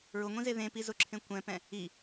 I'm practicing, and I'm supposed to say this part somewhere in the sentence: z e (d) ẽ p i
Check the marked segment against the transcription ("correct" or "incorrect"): incorrect